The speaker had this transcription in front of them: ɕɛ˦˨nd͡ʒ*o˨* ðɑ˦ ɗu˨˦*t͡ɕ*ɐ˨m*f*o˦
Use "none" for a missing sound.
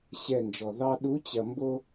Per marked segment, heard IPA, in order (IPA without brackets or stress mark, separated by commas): ɔ˨, t͡ɕ, b